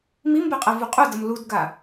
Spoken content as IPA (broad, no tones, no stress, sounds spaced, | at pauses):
m i m b ɛ qʼ ɛ v u qʼ u d ʌ m l u d ɡ a